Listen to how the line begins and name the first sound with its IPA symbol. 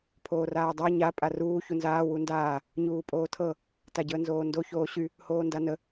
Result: pʰ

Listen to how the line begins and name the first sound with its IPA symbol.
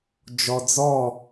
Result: d͡ʒ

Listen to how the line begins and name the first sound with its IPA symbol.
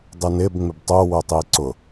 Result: dˤ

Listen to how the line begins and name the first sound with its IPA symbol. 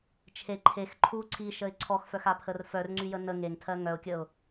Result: t͡ʃʰ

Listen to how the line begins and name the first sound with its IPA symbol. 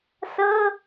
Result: s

